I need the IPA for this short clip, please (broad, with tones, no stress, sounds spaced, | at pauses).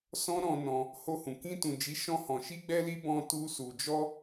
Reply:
s ɔ̃˦ ɾ ɔ̃˧ n ɔ̃˧ | h o˧ h ũ˨ k ĩ˧ t ũ˨ d͡ʒ i˨˦ ʃ ɔ̃˧ h ɔ̃˨ ʃ i˧ ɡ͡b ɛ˧ l i˧ b ɔ̃˧ t u˧ s u˨ d͡ʒ ɔ˧